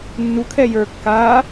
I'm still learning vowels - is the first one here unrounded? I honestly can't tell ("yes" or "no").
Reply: no